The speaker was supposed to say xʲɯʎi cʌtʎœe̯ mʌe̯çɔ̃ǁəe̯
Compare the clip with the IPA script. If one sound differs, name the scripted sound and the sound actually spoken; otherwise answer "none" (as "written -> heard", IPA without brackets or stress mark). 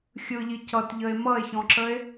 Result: œ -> ə